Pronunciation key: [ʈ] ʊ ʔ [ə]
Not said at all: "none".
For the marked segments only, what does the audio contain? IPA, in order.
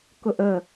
k, ə

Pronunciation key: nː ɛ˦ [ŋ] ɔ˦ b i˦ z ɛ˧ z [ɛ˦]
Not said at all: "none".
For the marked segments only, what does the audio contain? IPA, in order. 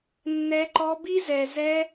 ǃ, ɛ˦

